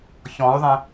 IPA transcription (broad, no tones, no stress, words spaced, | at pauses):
çɔ̃y̯ðˤẽ